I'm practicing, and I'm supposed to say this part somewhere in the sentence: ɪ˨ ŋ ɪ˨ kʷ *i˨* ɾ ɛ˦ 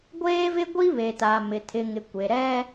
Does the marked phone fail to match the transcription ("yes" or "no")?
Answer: yes